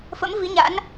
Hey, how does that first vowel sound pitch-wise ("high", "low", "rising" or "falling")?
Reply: rising